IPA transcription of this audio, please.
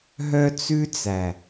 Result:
ɦ œ˦ t͡s ʉ˦ t͡s æ˨

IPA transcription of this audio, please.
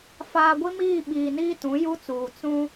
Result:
f aː˨ ɡʷ i˦ m iː˦˨ ɓ iː˨ n iː˦ t ũ˨˦ j u˦ t͡s uː˨ t͡s ũ˦

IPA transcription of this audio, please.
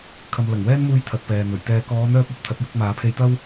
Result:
kʰ ɐ˨ m l ɐ˨˩ ŋ w ɛː˥ n m uː˧ j t̪ʰ ɐ˨ t̚ p ɛː˨ n̪ ɵ˨˩ ɥ t̪ ɛː˨ k ɔː˨˧ n̪ œː˧ p̚ ɐ˨˥ p̚ t̪ʰ ɐ˨˥ t̚ j ʊ˨˥ k̚ m aː˨˥ pʰ e˧ j t̪ ɐ˥ w

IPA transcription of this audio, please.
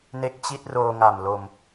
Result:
n e˥˩ k̚ t͡ɕ i˥˩ t̚ r oː˧ ŋ a˨˩ m l o˧ m

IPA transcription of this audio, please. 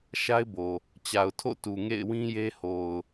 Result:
ʃ a˦ ɪ̯ b o˨ | t͡ɕ a˨ ʊ̯ tʰ o̰˦˨ t u˨ ŋ ḛ˦˨ ɪ̯ w ĩ˦ j e˦ h o˨ ʊ̯

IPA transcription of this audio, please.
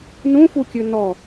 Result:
n ũ f u kʲ ʉ n ɔ

